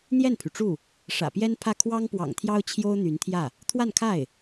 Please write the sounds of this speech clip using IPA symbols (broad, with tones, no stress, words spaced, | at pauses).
n̪jɛ˥˩npʰy˩ʈ͡ʂu˥˩ | ʂä̰˨˩pjɛ˥npʰä˥˩ kʰwɑ˥ŋpwɑ̰˨˩ŋt̪ʰjɑ˥ʊ̯ t͡ɕʰjo˥ʊ̯n̪y˧˥nt̪ʰjä˥˩ | t̪ʰwa˥˧nkʰa˥˩ɪ̯